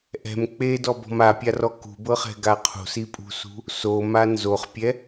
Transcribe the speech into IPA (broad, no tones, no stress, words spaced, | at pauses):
ʔɛ̤m k͡pedɔbɔ̤m apʲarɔ kṳbɤχɛ̤ɡa qʰṳsipʼṳsṳ | soma nzoχpʲɛ